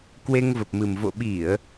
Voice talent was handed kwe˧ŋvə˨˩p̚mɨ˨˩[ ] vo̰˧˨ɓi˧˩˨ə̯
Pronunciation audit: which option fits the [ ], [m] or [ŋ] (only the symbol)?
m